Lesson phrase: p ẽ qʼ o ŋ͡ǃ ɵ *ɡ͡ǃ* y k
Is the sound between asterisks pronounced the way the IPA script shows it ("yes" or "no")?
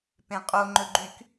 yes